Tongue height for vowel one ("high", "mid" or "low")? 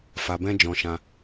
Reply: low